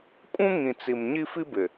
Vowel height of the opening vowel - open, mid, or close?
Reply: close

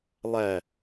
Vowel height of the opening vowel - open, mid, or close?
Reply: open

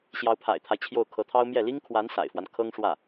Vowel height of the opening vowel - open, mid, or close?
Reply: open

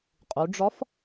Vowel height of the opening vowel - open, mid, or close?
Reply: close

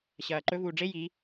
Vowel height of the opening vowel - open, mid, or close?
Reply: open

